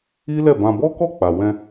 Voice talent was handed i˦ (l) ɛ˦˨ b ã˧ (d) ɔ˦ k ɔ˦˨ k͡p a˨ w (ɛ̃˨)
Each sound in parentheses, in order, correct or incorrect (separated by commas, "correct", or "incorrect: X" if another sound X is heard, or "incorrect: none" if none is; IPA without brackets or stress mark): correct, incorrect: b, incorrect: ɛ̃˧